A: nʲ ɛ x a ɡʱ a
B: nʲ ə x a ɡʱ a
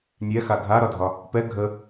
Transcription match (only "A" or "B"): A